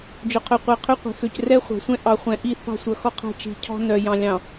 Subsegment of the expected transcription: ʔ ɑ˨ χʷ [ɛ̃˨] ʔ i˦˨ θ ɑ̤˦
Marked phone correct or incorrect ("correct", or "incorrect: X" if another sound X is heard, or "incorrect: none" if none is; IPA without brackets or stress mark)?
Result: correct